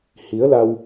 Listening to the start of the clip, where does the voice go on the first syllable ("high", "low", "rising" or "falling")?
rising